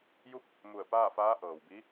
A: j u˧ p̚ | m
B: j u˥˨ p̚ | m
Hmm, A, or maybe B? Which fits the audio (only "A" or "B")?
B